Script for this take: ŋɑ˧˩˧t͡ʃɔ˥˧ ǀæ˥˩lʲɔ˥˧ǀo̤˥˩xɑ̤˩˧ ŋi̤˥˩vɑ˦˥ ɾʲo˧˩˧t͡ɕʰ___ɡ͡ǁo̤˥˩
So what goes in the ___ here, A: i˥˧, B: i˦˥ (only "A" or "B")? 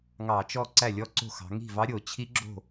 B